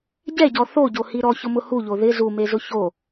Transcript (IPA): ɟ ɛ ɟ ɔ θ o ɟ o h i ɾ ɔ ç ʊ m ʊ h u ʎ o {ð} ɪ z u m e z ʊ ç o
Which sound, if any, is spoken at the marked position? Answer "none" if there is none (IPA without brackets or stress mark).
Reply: ð